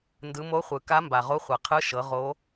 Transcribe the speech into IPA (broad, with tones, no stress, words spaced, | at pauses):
ndɯ˩˧ mo˧˥ χʷɯ˩ka˧˥mba˩ ʁo˧˥χʷɤ˩ qʰɯ˧˥ ʃɤ˩˧ ʁo˧˥